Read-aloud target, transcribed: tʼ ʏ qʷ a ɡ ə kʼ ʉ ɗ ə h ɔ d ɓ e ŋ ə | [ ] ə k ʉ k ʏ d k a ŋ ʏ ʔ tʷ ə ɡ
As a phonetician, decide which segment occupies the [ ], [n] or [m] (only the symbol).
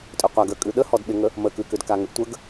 m